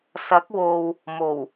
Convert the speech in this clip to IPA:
s ɐ˨˥ k̚ w o˨ w | m o˨˩ w

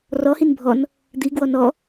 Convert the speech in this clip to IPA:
r ɔ h i n bʱ ɔ n | d̪ i ɡ w ɔ n ɔ

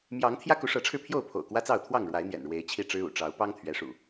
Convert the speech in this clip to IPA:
m j ɑ˨˦ ŋ t̪ʰ j ä˦ k u˨˦ ʂ ɤ˨˦ ʈ͡ʂʰ ɻ̩˧ pʰ j o˥˨ ʊ̯ pʰ o̰˨˩ ʊ̯ k w ä˦ t͡s ɑ˥˨ ʊ̯ t̪ʰ w ɑ˥˨ ŋ ɻ w a˨˦ ɪ̯ n̪ j ɛ̰˨˩ n ɻ w e˨˦ ɪ̯ t͡ɕʰ i˥˨ ʈ͡ʂ ɻ̩˦ ṵ˨˩ ʈ͡ʂ ɑ˨˦ ʊ̯ p ɑ˦ ŋ t̪ʰ ɥ ɛ˨˦ ʂ ṵ˨˩

